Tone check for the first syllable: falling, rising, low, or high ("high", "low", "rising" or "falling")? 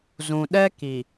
low